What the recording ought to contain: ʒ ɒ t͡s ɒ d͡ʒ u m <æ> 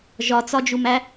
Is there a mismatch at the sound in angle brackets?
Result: no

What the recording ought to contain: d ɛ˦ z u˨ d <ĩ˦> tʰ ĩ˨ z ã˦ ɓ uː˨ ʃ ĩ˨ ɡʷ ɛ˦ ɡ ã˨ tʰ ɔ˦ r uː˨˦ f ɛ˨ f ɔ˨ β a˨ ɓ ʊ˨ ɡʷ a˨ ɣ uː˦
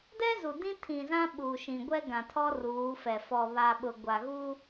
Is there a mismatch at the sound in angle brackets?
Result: no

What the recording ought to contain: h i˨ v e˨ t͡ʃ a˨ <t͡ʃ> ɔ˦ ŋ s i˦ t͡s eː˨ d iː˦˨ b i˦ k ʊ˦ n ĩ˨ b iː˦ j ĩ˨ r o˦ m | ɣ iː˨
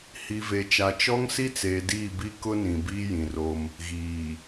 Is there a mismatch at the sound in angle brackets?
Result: no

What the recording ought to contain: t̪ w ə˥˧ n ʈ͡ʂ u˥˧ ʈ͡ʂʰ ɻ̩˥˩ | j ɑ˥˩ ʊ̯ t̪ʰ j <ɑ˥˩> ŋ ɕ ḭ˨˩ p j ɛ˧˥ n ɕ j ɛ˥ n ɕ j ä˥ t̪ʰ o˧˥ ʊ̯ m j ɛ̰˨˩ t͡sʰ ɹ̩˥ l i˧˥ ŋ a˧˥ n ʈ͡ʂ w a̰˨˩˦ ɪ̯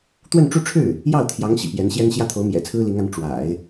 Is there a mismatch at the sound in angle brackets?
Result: yes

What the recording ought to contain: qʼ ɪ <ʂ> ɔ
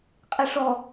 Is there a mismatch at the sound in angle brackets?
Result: no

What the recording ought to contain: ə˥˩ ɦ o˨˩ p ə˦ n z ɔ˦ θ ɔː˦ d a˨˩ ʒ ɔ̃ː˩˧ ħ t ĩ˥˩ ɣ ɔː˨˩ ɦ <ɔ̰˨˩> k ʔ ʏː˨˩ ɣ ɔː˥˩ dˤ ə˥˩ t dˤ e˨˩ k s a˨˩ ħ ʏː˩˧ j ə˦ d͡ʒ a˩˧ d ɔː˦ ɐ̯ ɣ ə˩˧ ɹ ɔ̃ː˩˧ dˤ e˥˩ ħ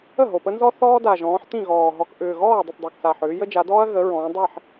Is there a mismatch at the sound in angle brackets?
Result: yes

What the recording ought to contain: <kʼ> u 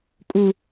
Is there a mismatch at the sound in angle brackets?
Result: no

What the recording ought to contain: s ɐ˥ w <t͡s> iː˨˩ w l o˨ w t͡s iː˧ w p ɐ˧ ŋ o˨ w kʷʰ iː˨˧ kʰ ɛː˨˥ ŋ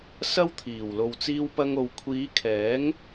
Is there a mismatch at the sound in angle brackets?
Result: yes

